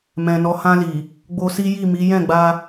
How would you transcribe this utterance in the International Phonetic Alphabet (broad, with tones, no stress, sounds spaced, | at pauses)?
m ɛ̃˨ n ɔ˨˦ h ã˧ l i˨ | ɡ͡b o˧ s i˦ j i˦˨ m i˨˦ j ɛ̃˦˨ ɡ͡b a˧